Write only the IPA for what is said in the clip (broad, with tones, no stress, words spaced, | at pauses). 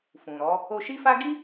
fũ˨ɾɔ˨˦ | o˧ʃi˦fa˦ ɡi˦